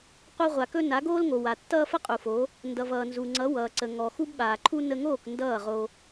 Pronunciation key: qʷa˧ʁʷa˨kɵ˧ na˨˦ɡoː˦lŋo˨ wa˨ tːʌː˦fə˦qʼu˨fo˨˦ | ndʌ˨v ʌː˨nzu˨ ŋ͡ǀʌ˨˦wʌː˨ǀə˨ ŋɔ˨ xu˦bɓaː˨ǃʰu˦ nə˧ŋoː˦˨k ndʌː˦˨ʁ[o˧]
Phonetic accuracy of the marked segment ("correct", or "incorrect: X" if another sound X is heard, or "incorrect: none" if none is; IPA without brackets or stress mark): correct